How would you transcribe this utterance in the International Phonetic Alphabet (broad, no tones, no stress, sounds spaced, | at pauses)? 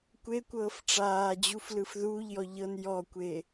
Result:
kʷ e kʷ ɤː f ʈ͡ʂ aː d͡ʑ u f l ɯ f ð uː ʎ j ɔ ʎ ɤ n j ɔ kʷ e